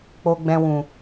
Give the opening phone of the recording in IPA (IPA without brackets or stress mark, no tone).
k͡p